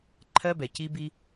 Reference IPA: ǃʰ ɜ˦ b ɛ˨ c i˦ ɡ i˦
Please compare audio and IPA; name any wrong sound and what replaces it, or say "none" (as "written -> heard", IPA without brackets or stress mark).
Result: ɡ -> b